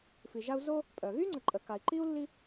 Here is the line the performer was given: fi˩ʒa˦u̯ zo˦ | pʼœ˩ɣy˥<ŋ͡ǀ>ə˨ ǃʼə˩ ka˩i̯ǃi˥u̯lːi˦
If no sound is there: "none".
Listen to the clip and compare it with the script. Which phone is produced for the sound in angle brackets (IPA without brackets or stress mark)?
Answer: ŋ͡ǀ